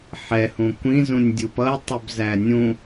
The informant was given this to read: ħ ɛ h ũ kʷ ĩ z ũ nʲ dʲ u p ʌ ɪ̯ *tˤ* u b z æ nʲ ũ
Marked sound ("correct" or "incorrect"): correct